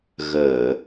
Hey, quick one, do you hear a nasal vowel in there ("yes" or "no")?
no